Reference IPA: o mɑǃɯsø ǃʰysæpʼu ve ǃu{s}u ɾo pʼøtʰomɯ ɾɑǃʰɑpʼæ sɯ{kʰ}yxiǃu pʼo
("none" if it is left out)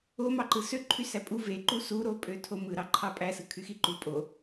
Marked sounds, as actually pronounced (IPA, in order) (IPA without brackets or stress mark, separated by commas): s, kʰ